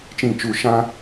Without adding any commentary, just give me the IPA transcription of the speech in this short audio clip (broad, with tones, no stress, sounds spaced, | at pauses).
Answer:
t͡ʃ ĩ˦˨ t͡ʃ u˦˨ ʃ ã˦